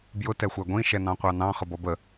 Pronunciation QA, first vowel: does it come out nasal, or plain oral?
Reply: oral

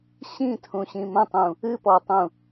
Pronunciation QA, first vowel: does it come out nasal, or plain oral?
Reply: nasal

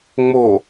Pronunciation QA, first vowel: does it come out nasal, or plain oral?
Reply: oral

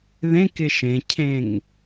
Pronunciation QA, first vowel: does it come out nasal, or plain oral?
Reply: nasal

